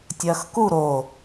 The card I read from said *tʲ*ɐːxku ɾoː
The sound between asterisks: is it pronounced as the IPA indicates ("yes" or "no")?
yes